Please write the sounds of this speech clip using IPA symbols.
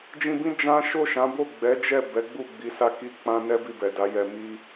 d͡ʒ ĩ˧ b ĩ˦ d͡ʒ ã˦ ʃ o˦˨ ʃ ã˨˦ b o˦˨ ɡ͡b ɛ˨˦ d͡ʒ ɛ˦˨ b ɛ˨˦ ɡ͡b u˦˨ ɡ͡b i˨˦ s a˦ k i˦ k͡p ã˦ n ɛ˦ b i˦˨ b ɛ˨ d a˨˦ j ɛ˧ m i˦

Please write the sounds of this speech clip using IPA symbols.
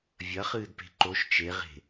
vʲ ɐ χ ɨː d p e̤ ǃ o ʃ t͡ʃ e ʁ e̤

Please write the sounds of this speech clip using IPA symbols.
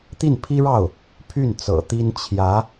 t̪ i˥˩ n pʰ i˥ ɻ ɑ˥˩ ʊ̯ | pʰ y˥˩ n t͡s ɤ̰˨˩ t̪ i˥ n t͡ɕʰ j ä˧˥

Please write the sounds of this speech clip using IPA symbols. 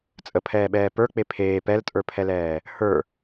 t͡sʼ ə pʰ ɛː ɓ ɛː p ə˞ k͡p e pʰ eː p ɛ l tʼ ə˞ pʰ ɛ l ɛː | h ə˞

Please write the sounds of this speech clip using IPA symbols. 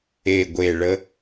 e˨˩ ɡʷ e˨˩ ɭ ə˦

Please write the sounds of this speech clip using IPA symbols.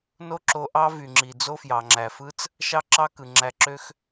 n o˦ ǁ o˧ ʔ ɑ˦ v y˨ ŋ͡ǁ i˨ d͡z o˦ f j ɑ˨ ŋ͡ǁ æ˨ f ɯ˦ t͡s | ʃ ɑ˦ ǁ ɑ˦ k ɯ˨ ŋ͡ǁ æ˧ ǁ ø˦ x

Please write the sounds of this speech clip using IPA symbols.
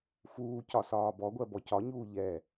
f uː c ɒ s ɒː b ɔ ɡʷ ɜ b ɔ c ɒ ɲ uː ʎ ɛ

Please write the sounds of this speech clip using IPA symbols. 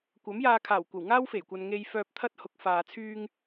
kʷ ɐ˨˥ m j aː˧ kʰ aː˨˩ w kʷ ɐ˨˩ w ŋ aː˥ w f e˨˩ j kʷ ɐ˨ n ŋ e˧ j f œː˧ p̚ t̪ʰ ɐ˥ t̚ h ʊ˨˥ k̚ f aː˨ t͡sʰ yː˧ ŋ

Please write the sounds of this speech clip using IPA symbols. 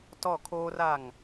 t ɔ˦˨ kʰ oː˦ r a˦˨ ŋ

